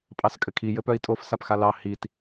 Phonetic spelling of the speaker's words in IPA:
pʼ ɑ s kʼ ɘ kʰ i j ɘ p œ i̯ tʼ o f s a p x a l ɑ h i t

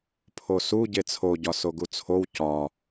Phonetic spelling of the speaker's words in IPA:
pʰ o s u ɟ e t͡sʰ o ɟ ɒ s o ɡ u t͡sʰ o w c ɒ

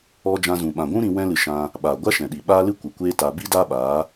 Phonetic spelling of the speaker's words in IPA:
ɔ˦ d͡ʒ ã˧ z ũ˨ ɓ ã˨ ɡʷ ũ˦ ɾ ĩ˧ w ɛ̃˦ l ɨ˧ ʃ ã˧ | ɓ a˨ ɡʷ a˦ ʃ ɛ̃˨ ɗ i˨ ɓ aː˦ l ɨ˦ kʷ ɨ˨ kʷ eː˦ t a˧ b i˦ d aː˦ ɓ aː˨˦

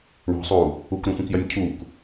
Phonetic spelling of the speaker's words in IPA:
ɳ ɔ̤ sˤ uː | u k ɾ ũ xʷ ĩ k j ɜ nʲ cʰ uː k

